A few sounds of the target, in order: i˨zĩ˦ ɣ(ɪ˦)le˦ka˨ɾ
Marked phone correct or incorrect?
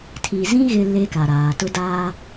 correct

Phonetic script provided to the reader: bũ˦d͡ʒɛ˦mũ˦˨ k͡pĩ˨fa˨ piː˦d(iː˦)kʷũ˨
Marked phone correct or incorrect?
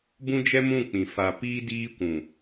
correct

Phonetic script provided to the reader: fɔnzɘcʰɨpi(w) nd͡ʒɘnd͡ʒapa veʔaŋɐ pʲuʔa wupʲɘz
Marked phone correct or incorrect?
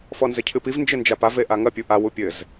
incorrect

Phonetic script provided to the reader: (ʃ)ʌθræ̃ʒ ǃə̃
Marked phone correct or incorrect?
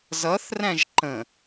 incorrect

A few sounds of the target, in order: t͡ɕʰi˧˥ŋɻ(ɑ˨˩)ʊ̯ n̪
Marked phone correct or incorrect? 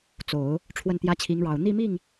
correct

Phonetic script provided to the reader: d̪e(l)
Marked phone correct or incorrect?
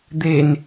incorrect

